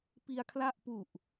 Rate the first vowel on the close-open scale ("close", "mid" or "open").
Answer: close